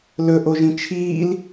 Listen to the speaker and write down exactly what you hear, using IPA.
l ɵ ʔ o ʒ ĩ t͡ʃʰ iː l

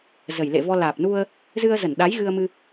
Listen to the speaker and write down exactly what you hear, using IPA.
z ə˨˩ j l ḛ˧˨ v ɔ˧ l aː˨˩ p̚ n u˧ ə̯ | z ɨ˧ ə̯ z ə˧˩ n ɗ a˨˦ j ɣ ɨ˧ ə̯ m ɨ˧

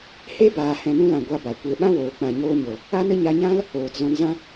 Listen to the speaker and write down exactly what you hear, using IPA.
h e˦ b aː˨ h ɛ̃˨ n ũ˧ l ã˨ ɡʷ a˧ b a˨ kʷ e˨ ɓ ã˦ w oː˨ k͡p ã˨ ɲ oː˧ ɲ o˨ | a˦ n ə˦ ɲ a˧ ɲ ã˦ l | oː˨ t z ɔ̃˧ n z ã˦

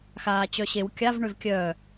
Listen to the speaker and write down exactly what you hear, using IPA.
x aː t͡ɕ œ ɕ e w kʲ a v ɳ ø v kʲ œː

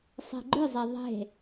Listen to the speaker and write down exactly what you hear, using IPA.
sˤ e̤ ɡ͡ǃ ʏ zˤ e ðˤ e̤

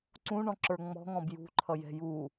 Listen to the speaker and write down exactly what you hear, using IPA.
ǀ ũ ɳ ɔ̃ ǁ ə˞ ŋ͡m ɔ̤ ŋ ɔ̃ b j ṳ ǃʰ ʌ j ɛ̤ j uː

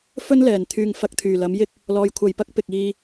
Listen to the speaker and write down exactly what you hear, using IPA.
f ɵ˥ n l ɛː˨˩ n t̪ʰ yː˨ ŋ f ɐ˧ k̚ t̪ʰ yː˨˩ l ɐ˨˥ m j ɪ˥ k̚ | l ɔː˨˧ j kʷʰ ɐ˨ j p ɐ˥ k̚ p ɪ˨ k̚ iː˧

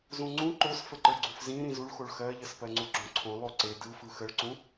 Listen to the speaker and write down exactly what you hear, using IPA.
z ũ ŋ͡ǀ ũ ǃ o s f ə ǃ ə˞ ɡ͡ǀ u f z ĩ ɾ ĩ z u ɭ x o ɭ x ɜ ʎ ə s p ɜ ŋ͡ǀ u ɡ͡ǁ õ ǀʰ õ lˠ o ǀ e d ɯ f ɯ x ə ɭ ǀ ũ

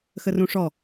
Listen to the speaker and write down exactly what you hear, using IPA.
x ə r ũ ʂ ɔ

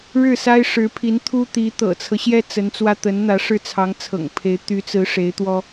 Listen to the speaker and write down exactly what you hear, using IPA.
ɻ ɻ̩˥˩ s a˥ ɪ̯ ʂ ɻ̩˧˥ pʰ i˧˥ n t̪ʰ u˥ t̪ i˧˥ t̪ ɤ̰˨˩ t͡sʰ ɤ˦ ɕ j ɛ˥ t͡s ə˧˥ n t͡s w ä˥ t̪ ə˧˥ n n̪ ä˧˥ ʂ ɻ̩˥˩ t͡sʰ ɑ˧˥ ŋ t͡sʰ ɤ̰˨˩ ŋ pʰ e˧˥ ɪ̯ t̪ y˧˥ t͡s ɹ̩˧˥ ʂ e˧˥ ɪ̯ t̪ w ɔ˥

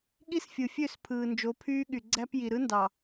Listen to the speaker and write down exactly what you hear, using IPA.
ɠ i˦ s fʲ ɯ˨ fʲ ø˦˨ s pʰ ɯː˨ n d͡ʒ o˨˦ pʰ yː˦ ɠ y˨ ɡ͡ǀ æ˦ p j i˨ ɾ ɯ˦ n d ɑ˨

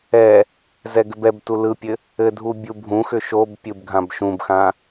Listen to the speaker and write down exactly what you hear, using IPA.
ɛ | z ɛ ɡ ʏ b ɛ b t u l ɯ pʲ ɘ | ɘ dʱ u bʲ u bʱ ũ x ʏ ʃ o b pʲ ɯ b ɡʱ ã b ʃ ũ b x ã

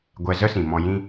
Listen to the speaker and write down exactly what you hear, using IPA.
ɡʷ ɛ˧ z ə˦ s ĩ˨ m ɔ̃˧ j ĩ˦

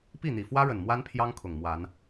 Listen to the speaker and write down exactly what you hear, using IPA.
p i˥˨ n̪ i˨˩ f w ä˦ ɻ ə˨˩ n m w a˦ n pʰ j ɑ˦ ŋ kʰ ʊ˨˩ ŋ m w a˨˦ n

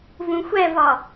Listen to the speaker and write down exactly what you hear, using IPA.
v ũ xʷ ɛ v ɒ

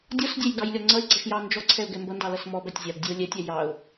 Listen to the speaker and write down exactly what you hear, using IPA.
dʲ ɔ s dʲ ɛ j ɡ ɑ j lʲ ɔ ŋ͡ǀ ʌ ɪ̯ ɡ͡ǀ ʌ ʃ j ɑ n d͡ʒ ɔ ǀʰ ɛ ʊ̯ ɡ ɛ m b ʌ n d ɑ l ʌ s m ɔ b æ tʲ zʲ ɑ b dʲ ɛ ʊ̯ lʲ ɛ tʲ æ j ɑ ʊ̯

